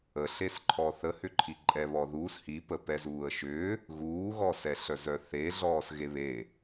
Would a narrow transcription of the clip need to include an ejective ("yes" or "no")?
yes